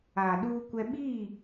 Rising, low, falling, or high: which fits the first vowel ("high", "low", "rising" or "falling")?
low